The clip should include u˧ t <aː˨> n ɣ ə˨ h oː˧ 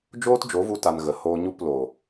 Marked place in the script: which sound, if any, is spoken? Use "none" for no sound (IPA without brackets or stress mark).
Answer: a˨